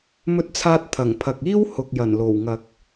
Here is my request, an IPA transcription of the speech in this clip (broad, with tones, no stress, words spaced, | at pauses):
mɵ˧t̚t͡sʰaː˧t̚t̪ʰɐ˨˩ŋ pʰɐ˨k̚ iː˥w hʊ˨k̚jɐ˨˩n lo˨˩wŋɐ˨k̚